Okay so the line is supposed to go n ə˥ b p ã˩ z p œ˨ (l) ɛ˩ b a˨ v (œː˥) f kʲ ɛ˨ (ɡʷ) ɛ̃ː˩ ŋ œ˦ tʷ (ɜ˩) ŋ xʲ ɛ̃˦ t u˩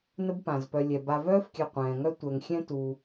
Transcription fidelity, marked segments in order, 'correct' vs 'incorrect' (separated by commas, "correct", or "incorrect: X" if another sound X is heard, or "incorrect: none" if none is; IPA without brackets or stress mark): incorrect: lʲ, correct, incorrect: qʷ, incorrect: ɛ˩